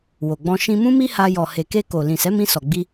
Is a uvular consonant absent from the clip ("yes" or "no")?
yes